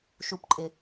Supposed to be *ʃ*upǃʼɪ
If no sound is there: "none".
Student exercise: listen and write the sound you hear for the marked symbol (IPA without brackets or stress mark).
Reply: ʃ